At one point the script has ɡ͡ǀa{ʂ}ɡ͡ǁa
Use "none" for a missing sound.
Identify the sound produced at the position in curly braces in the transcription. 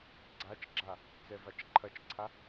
t͡ʃ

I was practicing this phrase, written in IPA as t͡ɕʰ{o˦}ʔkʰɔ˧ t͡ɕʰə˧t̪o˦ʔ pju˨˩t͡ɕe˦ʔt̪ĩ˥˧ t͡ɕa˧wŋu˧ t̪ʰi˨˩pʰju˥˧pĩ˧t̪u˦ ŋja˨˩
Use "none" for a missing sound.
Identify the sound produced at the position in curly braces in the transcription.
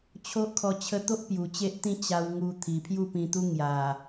o˦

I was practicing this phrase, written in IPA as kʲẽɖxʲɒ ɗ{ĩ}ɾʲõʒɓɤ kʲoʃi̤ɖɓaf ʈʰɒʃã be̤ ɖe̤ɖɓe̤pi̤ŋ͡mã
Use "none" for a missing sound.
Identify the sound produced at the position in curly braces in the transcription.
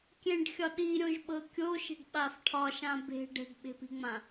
i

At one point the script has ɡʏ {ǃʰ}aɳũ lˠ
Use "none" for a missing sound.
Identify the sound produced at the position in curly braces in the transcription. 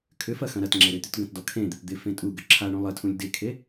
ǁʰ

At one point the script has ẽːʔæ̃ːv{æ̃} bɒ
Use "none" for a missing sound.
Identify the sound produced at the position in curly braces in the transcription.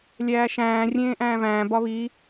æ̃ː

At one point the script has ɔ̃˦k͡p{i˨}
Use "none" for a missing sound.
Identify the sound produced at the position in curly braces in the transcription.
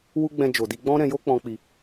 i˧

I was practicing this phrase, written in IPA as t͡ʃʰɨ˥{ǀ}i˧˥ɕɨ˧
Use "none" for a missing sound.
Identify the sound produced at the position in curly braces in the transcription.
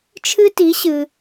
t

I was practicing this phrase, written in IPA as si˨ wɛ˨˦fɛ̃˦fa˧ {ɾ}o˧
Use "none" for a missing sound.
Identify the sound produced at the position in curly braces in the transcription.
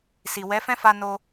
n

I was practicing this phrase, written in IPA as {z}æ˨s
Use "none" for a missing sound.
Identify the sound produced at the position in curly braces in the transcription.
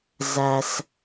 z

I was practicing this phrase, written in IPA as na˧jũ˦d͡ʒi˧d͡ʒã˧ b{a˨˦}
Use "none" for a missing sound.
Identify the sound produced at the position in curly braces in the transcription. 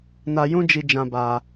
a˧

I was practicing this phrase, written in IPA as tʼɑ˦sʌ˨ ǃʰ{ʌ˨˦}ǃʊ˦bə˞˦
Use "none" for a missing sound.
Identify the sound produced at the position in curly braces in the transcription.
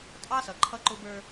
ʌ˦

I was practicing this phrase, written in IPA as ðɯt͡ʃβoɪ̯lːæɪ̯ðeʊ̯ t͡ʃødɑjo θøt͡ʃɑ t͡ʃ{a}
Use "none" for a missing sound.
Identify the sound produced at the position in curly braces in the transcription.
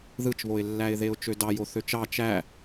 æ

